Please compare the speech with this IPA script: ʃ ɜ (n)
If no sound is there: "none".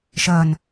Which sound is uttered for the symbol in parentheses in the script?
n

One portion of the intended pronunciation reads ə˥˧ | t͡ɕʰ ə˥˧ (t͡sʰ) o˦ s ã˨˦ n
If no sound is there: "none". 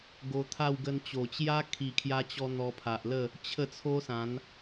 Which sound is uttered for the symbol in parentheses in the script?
t͡sʰ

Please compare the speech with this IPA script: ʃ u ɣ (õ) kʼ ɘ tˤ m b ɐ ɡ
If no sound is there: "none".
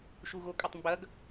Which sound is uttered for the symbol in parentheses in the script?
o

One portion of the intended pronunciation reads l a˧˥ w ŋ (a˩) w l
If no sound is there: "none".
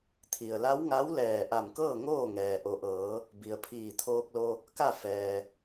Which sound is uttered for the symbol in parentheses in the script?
a˧˥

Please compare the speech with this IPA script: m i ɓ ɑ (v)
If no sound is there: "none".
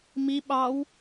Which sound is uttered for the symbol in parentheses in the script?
w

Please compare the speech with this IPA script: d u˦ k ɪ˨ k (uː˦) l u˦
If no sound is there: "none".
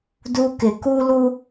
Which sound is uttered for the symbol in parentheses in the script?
u˦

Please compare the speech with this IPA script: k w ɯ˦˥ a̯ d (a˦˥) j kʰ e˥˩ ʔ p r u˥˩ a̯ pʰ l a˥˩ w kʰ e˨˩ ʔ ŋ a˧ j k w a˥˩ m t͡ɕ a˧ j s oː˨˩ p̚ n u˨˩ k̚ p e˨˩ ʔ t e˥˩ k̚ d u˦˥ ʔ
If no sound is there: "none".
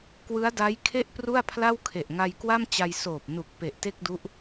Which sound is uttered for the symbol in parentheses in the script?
a˦˥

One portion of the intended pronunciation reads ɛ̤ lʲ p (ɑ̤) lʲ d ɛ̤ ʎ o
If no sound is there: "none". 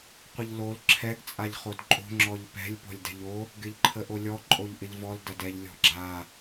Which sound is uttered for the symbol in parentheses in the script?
ɔ̤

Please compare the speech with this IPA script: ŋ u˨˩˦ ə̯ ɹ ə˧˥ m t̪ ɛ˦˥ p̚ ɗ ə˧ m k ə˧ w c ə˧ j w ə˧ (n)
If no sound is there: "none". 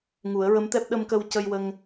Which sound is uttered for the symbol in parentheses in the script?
ŋ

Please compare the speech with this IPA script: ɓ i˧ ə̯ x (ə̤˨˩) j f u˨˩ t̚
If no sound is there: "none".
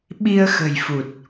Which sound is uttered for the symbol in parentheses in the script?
ə̤˨˩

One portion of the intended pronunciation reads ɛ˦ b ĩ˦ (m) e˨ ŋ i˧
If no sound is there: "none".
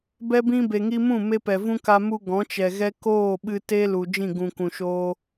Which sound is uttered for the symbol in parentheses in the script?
b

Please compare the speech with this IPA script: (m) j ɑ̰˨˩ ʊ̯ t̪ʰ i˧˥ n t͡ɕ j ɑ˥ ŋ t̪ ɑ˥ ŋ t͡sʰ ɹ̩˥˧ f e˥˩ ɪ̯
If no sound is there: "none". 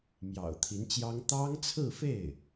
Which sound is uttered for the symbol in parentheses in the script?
m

